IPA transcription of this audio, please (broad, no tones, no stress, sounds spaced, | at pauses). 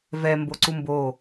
v ɛ m b o ǀ u m b o